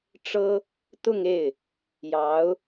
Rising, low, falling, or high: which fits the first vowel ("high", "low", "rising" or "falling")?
high